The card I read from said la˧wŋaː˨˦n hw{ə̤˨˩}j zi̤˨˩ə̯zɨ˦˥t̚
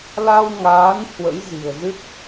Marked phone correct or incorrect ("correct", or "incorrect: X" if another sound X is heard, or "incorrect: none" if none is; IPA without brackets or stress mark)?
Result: incorrect: ə̰˧˥